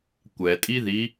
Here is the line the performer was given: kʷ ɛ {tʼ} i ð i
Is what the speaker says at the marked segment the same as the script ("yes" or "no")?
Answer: yes